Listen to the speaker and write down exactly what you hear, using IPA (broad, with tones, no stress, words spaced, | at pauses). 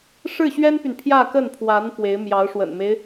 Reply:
ʂɻ̩˥˩ɕɥɛ˥npy˨n pʰjä˥˧kə˥˩npʰwa˧˥n pwe˧˥ɪ̯mjɑ˧˥ʊ̯ ʂwə̰˨˩nme˦ɪ̯